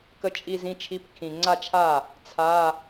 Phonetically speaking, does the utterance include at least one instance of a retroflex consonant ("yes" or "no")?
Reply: no